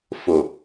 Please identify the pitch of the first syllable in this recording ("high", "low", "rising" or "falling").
low